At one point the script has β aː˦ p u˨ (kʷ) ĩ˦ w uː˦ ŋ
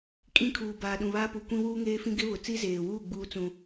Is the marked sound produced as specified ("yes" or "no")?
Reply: yes